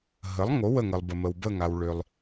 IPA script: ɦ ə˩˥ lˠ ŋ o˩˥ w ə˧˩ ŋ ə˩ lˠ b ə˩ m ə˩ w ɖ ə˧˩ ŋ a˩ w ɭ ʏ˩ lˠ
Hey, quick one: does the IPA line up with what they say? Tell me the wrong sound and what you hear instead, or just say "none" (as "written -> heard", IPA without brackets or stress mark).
ɖ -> b